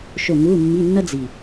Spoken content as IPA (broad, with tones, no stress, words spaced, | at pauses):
ʃo˦˨ŋuː˧˥˧mːi˧˥˧nːʌ˥ d͡zi˨˩